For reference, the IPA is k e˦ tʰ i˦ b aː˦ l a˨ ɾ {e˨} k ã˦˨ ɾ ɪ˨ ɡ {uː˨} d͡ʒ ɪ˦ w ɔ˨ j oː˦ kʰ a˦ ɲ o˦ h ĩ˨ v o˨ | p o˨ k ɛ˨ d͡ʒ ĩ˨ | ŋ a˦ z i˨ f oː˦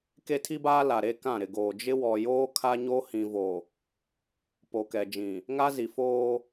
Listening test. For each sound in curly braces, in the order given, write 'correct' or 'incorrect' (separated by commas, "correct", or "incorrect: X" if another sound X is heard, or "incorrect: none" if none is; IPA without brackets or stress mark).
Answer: incorrect: e˦, incorrect: oː˨